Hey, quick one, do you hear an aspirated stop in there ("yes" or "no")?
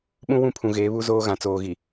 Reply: yes